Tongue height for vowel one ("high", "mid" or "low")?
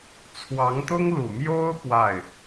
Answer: low